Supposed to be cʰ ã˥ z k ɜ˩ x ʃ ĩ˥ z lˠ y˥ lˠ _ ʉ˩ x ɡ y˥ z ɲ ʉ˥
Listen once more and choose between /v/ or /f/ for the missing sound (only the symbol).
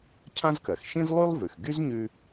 v